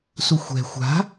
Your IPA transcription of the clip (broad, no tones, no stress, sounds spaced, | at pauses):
s u xʷ ɛ̤ xʷ a̤